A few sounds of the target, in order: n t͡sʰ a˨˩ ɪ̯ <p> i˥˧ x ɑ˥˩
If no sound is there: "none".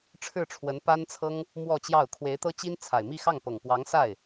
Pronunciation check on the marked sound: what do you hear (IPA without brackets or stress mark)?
m